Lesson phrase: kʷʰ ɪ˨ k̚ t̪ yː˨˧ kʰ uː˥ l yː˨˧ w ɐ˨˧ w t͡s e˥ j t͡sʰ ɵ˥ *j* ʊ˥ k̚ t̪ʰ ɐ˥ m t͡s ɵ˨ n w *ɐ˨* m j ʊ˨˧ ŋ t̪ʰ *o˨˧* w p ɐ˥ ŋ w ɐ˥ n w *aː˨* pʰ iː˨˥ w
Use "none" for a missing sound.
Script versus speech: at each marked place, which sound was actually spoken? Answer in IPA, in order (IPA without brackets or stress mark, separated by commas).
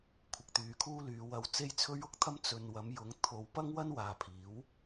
ɥ, ɐ˨˧, o˨˧, aː˨